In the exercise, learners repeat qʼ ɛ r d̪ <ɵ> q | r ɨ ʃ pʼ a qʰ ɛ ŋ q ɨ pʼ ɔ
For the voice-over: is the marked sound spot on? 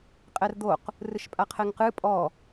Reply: no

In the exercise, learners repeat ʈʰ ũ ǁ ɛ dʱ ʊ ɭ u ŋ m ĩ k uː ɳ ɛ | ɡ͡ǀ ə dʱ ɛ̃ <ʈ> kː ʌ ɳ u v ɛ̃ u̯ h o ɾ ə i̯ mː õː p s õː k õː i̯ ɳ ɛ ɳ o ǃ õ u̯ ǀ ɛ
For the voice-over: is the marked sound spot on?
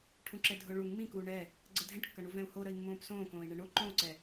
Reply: yes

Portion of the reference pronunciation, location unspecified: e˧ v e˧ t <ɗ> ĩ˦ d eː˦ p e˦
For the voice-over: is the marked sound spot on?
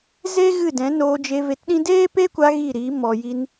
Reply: yes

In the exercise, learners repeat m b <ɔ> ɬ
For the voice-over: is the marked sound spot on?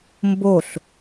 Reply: no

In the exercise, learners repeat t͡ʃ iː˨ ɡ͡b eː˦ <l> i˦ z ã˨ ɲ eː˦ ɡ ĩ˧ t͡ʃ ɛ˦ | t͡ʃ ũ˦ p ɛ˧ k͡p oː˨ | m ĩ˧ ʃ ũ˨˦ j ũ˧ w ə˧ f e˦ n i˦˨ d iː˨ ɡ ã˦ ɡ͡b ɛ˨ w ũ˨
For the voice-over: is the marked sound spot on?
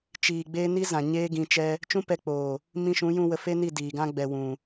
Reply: no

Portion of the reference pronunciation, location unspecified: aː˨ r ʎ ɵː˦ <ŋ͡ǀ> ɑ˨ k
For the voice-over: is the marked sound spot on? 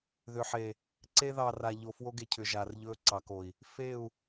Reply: no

